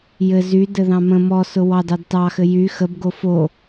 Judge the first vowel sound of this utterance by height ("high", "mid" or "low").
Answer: mid